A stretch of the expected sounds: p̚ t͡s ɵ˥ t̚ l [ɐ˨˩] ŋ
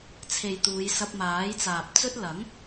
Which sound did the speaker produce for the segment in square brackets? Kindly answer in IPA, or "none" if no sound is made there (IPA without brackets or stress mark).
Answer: ɐ˨˥